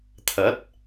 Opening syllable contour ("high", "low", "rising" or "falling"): rising